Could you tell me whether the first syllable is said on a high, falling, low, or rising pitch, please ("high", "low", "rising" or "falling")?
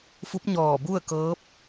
rising